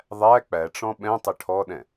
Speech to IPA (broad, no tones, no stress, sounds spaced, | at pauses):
ðˤ æ k͡p æ ʈ͡ʂ ɔ̃ ɓ ɛ̃ tˤ ə ʈʰ ɔ ɗ ɛ̃